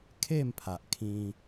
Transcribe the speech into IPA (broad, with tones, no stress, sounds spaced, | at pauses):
kʰ e˥˧ m pʰ a˨ ʔ kʰ ĩ˧